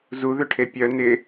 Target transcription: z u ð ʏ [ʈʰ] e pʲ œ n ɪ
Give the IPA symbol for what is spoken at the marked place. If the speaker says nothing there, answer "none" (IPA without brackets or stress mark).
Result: ʈʰ